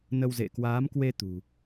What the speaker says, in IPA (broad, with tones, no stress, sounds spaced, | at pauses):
n ə˧ w z ḛ˧˨ k w aː˨˦ m k w e˧ t̪ ṳ˨˩